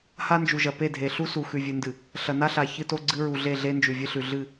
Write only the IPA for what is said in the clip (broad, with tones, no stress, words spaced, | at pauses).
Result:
ha˦nd͡ʒu˨ʒɐ˨ pe˦˨dʱe˨ ɬu˦su˨ xʉ˨vʲɨ˨ndɨ˨ | ɬɐ˨na˦ɬa˨ çɨ˦to˦ɡ͡ǀɨ˦ ɹu˨ɮe˦˨ɮe˦ nd͡ʒʉ˨vʲɨ˦ɬʉ˨ ɮɨ˦˨